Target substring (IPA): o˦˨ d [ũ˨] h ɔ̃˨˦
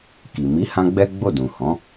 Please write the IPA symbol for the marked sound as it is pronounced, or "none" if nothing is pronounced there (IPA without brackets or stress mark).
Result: ũ˨